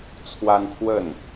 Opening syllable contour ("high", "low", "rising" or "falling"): high